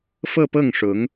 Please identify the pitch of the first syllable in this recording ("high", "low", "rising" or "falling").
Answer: falling